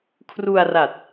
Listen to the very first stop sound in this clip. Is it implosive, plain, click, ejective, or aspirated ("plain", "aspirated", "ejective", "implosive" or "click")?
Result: aspirated